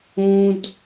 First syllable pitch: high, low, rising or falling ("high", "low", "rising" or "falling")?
high